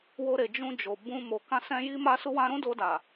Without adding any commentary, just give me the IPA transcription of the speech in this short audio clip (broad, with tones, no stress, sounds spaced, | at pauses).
w o˧ ɾ e˨ d͡ʒ ũ˧ d͡ʒ o˨ b ũ˧ m o˨ k ã˧ s ɛ̃˧ j i˦ m a˦ s u˦ w ã˦ ɾ ũ˦ d o˧ d a˨